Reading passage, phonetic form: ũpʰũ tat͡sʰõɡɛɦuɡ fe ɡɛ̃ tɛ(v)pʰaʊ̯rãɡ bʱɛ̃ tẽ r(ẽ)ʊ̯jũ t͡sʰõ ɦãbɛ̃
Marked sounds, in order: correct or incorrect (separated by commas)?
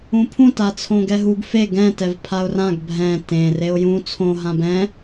correct, incorrect